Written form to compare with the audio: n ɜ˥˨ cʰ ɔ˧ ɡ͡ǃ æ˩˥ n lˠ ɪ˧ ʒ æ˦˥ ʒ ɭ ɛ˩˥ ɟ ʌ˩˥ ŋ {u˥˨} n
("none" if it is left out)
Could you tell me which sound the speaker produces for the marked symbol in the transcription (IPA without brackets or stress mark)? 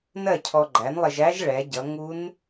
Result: u˦˥